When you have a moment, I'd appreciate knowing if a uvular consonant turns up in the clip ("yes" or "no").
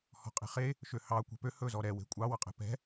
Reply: yes